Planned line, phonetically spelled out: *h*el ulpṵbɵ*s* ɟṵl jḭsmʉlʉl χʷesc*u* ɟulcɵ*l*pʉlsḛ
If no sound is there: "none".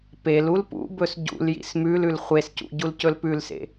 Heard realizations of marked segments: p, s, ṵ, l

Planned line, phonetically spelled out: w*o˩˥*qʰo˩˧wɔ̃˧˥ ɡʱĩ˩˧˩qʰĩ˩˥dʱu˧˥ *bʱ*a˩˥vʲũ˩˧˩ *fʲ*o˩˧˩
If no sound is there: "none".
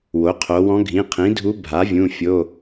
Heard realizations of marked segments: o˩˥, bʱ, fʲ

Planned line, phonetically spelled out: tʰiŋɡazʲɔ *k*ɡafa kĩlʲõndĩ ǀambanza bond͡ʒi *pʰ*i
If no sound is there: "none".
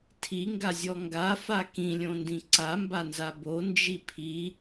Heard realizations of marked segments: ŋ, pʰ

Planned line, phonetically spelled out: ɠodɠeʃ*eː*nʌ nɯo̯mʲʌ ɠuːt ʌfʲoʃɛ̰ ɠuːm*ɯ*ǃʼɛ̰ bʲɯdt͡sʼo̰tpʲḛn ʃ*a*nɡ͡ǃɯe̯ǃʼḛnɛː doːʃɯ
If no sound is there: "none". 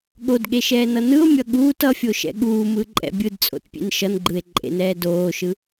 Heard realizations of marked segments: ɛː, ɯ, ʌ

